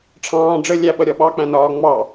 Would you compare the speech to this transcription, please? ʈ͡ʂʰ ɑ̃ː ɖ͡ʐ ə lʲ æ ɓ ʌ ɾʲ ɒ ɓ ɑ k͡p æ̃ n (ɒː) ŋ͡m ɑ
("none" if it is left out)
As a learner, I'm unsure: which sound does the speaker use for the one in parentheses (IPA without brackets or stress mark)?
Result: ɒː